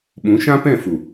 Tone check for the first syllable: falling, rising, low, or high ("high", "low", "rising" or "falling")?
rising